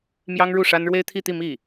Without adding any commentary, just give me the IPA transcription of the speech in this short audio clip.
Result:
mjɑ˥ŋɻu˥˩ʂa˥n ɻwe˥ɪ̯t̪ʰi˥˧t̪i˥˧ mi˥˩

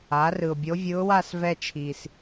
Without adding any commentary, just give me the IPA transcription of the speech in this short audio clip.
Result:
a˩˥rɯ˨˩ʊ̯bʲo˧˥vʲɯ˧˥ʊ̯ wa˥˧s vɛ˥˧t͡ʃʰi˨˩s

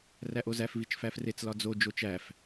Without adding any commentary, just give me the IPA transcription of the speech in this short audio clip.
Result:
ræʔozæf vit͡ʃfæfret͡s lɒd͡zo d͡ʒot͡ʃæf

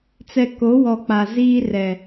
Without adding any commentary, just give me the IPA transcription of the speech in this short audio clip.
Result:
t͡sɛ˨ ko˨˦wɔ˨ k͡pa˨ ziː˦rɛ˨

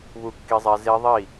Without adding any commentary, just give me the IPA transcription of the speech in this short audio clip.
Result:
βu˥˨kːi˦˥zˤɛ˦˥ ze˦˥ðˤi˥˨

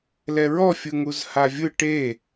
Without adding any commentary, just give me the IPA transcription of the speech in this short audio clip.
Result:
lɛɹɔfʲɯ ŋuzhavʲɯ ʈe

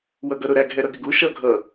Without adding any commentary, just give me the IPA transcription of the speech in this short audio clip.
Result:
wʌɡʌɾʊɾæɡ ɦɛɾʌɡɪɡu ʃʌ ɡʱʌ

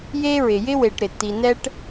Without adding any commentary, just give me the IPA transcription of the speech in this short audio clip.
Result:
je˥ɹɪ˨ jɪ˥we˨ʈ ɾɪ˩tːi˨nɛ˦ʈ

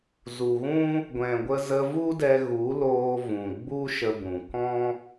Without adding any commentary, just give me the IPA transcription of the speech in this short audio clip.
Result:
zu˨ɣũ˦ | ɡʷɛ̃˨ɡʷə˧ zə˧vu˦dɛ˧ ɣu˨˦loː˧ vũ˨ɡ͡bu˦ʃə˧ bũ˨ kɔ̃˦

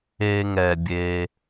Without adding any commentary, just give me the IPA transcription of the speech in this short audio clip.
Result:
eː˧ŋɛ˩ bʲe˩

